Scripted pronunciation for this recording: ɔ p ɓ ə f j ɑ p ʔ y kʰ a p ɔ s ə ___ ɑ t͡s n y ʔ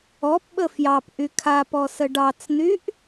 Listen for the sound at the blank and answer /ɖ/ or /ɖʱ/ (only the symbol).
ɖ